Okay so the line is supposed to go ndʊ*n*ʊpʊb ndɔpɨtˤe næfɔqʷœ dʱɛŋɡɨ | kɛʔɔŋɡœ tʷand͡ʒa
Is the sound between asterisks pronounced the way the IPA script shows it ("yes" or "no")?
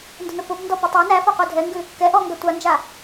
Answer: yes